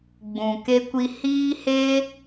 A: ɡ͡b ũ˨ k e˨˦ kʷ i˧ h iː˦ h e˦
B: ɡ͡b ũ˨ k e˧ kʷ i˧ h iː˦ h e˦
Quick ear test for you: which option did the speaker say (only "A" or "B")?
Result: B